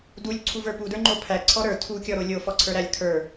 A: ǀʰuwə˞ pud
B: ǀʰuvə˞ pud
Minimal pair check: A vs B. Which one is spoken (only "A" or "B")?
B